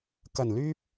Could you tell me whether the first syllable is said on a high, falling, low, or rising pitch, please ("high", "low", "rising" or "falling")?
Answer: low